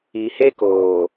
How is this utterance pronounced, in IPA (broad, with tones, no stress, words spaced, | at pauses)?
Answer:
i˨he˦koː˨